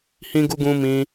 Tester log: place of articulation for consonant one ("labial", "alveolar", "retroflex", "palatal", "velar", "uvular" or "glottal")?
glottal